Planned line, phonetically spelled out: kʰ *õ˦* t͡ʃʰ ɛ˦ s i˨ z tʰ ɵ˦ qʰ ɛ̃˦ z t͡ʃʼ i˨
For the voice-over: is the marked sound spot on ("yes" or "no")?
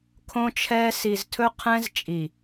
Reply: yes